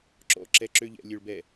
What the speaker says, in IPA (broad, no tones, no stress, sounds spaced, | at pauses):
ǁ ɔ̰ ǁ ɛ ǁ ø ʎ ɛ̰ lʲ ø ɭ b ɛ